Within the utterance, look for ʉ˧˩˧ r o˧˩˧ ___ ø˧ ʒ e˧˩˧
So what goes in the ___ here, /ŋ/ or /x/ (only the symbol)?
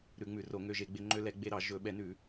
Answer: ŋ